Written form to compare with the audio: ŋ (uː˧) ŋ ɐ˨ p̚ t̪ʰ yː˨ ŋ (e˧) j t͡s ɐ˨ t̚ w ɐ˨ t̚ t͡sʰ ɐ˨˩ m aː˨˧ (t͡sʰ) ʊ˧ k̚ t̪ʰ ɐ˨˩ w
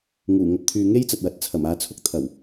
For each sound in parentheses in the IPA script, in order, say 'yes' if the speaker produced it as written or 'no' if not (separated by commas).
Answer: no, no, yes